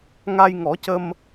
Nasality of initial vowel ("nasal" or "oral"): oral